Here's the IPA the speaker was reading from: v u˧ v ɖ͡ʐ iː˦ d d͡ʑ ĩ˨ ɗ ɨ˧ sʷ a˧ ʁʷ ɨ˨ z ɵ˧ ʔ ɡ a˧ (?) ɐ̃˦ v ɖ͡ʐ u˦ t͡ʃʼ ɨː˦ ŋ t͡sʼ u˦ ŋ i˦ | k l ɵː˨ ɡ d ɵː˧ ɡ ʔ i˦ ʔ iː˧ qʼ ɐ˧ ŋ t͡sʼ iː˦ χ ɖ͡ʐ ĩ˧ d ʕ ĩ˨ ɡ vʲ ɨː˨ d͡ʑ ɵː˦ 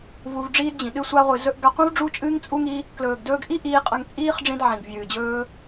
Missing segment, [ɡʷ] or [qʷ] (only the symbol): qʷ